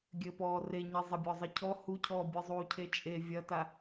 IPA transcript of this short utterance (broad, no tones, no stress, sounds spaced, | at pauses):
ɡʲ ɘ p ɔː r e ɲ e zˤ ɐ bʲ ɔ zˤ ɘ cʰ ɔ h u cʰ ɔː bʲ ɨ zˤ uː cʰ e t͡ʃʼ e vʲ ɐ t a